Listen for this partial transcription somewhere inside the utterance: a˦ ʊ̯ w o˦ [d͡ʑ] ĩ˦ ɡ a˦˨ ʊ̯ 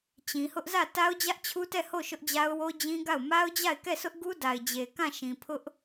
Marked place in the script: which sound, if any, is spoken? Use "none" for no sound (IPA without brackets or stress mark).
d͡ʑ